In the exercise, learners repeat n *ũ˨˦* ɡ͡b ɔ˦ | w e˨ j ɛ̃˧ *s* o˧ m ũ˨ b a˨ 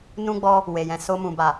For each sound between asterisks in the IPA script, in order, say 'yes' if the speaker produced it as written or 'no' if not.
no, yes

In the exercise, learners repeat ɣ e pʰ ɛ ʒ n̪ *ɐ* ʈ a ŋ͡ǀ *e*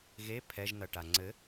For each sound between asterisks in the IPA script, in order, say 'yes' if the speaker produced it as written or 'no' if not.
yes, no

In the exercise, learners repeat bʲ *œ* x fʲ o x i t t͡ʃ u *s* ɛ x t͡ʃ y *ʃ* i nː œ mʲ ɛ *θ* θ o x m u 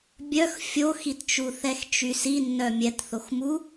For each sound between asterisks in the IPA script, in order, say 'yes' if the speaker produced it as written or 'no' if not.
yes, no, no, no

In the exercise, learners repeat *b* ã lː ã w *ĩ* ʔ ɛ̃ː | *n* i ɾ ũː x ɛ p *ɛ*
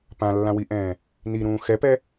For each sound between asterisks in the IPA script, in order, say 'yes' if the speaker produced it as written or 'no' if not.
no, no, yes, yes

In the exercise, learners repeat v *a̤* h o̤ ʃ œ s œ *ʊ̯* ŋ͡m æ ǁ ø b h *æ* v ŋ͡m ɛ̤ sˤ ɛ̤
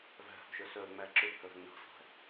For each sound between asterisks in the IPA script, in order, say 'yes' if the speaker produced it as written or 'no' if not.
no, yes, no

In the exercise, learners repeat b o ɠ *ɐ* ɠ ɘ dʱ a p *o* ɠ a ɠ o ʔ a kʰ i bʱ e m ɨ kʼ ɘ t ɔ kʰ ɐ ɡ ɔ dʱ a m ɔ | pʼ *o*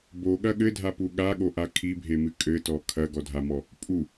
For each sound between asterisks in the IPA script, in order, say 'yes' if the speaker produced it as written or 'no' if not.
yes, no, no

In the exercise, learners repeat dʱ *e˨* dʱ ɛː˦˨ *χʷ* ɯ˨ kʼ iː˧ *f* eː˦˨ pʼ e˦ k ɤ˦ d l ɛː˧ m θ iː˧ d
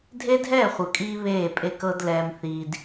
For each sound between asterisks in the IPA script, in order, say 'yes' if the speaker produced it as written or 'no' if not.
no, yes, no

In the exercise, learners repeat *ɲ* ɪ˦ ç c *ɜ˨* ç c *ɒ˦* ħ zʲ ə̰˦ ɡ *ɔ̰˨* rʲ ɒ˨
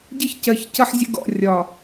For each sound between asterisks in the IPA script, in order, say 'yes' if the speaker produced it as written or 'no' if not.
no, yes, no, yes

